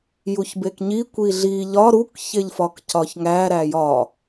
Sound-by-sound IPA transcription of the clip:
juçbekɲi kʷiɮi ʎɒ ɾuk çeʎfɒkcɒçŋæ ɾæjɒ

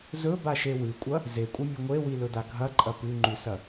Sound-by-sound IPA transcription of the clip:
zɵbaʃe wʉkʷʼɐ | zekʷʼɨmʲɵ ŋʷewilɵda ɡʱɐǃʼɐ pʉŋ͡ǃʉsɐ

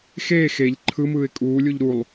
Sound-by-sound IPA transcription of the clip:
xeː xeʎ ǃʰɯmɯːɪ̯ kʼuːlʲuʎ ɾulˠ

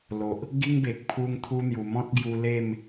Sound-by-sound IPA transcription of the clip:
lo˨ʔ | ɡi˦ŋbe˨k̚ pʰu˦ŋt̪ʰu˦n̪ju˨˩ mɔ̃˦t̚ɡju˧ le˥˧m

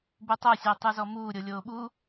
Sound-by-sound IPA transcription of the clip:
butˤosʲɑ tˤuzɔmuːɾʲo lʲoːɓu

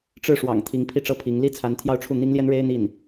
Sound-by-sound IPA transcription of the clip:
ʈ͡ʂɻ̩˥˩ʂwɑ̰˨˩ŋ t̪ʰi˧˥ŋ pʰi˥ʈ͡ʂɤ˥˩pʰi˧˥ŋ li˥t͡sʰa˧˥nt̪ʰjɑ˥˧ʊ̯ʈ͡ʂʰu˥˩ n̪i˥ŋljɛ˥nɻe˥ɪ̯ n̪i˥˩n

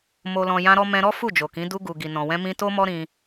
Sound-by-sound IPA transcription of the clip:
mo˨lɔ̃˨ jã˧ɾɔ˧mɛ̃˧ɾɔ˦ fu˦˨d͡ʒo˨kĩ˨˦ du˧ɡu˨ ɡi˨nɔ̃˨wɛ̃˧ mĩ˧to˦mɔ˦ ɾĩ˧

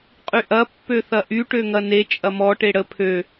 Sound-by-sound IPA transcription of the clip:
qʼyʔɐ pːøθɐʔy ʈøŋɐne t͡ʃʼɐmɔ ʈeɽə pʰø

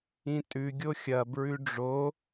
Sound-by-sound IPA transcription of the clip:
ĩtʼʉ ɡʲoxʲɐ bɹʉɖ͡ʐo

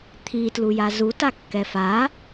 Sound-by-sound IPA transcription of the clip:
t̪ʰitlu jazu takːɛfa

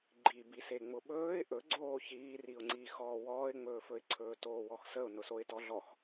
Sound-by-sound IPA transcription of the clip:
ɡ͡ǃibi seŋ͡mʊɓɵːɪ̯ ʔɵɡ͡ǀoː çiːriʊ̯ŋ͡ǀiːxɔː wɔːɪ̯ŋ͡mɵːfɵɪ̯ǀʰɵː toːwɔxsəʊ̯ nʊsoɪ̯tɔɮɔx

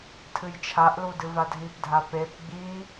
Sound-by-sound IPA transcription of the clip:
tʰɨjt͡ʃʰaʔlu dɨvadʱipdʱa pep ɡ͡bi

